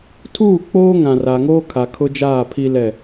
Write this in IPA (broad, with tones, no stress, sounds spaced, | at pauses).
tʰ uː˦˨ k͡p oː˦ ŋ ã˨ r a˨ ŋ oː˦ kʰ a˨ kʰ ʊ˦ d͡ʒ aː˦˨ pʰ i˦ l ɛ˦˨